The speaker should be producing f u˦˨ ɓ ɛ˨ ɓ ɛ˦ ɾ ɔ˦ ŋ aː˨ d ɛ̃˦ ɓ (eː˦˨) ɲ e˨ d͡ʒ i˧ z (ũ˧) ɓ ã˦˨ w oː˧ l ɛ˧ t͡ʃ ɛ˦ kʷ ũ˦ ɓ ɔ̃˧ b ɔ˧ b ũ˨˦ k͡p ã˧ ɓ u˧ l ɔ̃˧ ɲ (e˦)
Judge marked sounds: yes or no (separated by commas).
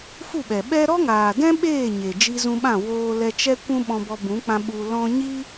yes, yes, no